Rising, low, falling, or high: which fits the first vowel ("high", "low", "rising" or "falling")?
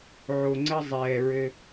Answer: low